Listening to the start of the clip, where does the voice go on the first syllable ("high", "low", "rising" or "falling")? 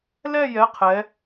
falling